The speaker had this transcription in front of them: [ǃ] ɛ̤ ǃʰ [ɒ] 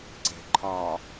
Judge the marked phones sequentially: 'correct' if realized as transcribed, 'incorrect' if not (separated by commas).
incorrect, correct